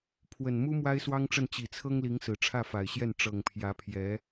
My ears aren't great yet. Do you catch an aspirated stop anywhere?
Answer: yes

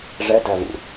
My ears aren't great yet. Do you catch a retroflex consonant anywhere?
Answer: yes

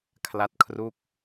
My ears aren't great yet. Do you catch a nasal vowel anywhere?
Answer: no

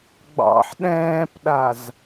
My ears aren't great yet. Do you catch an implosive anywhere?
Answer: yes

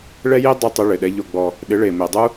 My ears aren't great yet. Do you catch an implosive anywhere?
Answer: yes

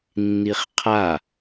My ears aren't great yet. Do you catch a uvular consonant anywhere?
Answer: yes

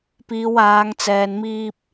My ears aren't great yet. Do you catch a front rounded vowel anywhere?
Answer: no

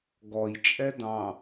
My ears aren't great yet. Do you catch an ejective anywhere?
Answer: yes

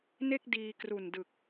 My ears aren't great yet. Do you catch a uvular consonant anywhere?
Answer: no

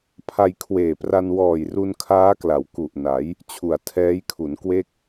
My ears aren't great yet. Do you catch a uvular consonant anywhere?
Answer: no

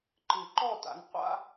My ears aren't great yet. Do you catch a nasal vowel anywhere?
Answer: no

